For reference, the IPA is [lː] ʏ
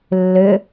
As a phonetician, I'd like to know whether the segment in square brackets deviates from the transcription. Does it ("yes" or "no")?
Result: no